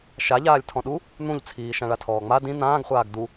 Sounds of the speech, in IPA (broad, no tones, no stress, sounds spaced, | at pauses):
ʃ a ʎ aː lʲ tʰ ɔ̃ ɗ u | n̪ ũ ʎ t͡sʰ iː ʃ ã ɭ a tʰ ɔː ŋ͡m a d ĩ n̪ ãː ɡ χʷ aː ɡ d u